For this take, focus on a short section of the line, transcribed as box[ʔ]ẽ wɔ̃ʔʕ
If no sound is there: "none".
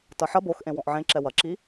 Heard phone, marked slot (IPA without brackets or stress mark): ʔ